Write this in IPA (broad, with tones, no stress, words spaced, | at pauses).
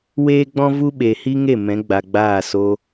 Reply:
weː˦ɡ͡bɔ̃˦vu˦ɓe˨ hi˦ŋe˦˨ mɛ̃˨˦ɡ͡ba˨ɡ͡baː˦˨ so˧